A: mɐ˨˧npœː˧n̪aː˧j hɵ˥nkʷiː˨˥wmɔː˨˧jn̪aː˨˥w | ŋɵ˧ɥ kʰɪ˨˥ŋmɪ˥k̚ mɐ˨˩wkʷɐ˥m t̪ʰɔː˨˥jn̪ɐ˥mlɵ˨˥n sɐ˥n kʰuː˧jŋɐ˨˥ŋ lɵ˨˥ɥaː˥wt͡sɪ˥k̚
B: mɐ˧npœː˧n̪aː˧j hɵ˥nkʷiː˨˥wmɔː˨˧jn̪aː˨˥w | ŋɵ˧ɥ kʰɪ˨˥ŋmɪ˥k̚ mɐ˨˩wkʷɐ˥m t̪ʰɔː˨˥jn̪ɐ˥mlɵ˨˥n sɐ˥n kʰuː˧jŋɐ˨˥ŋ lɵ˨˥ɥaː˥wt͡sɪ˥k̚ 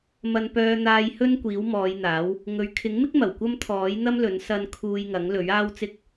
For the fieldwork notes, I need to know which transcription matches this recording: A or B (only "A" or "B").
B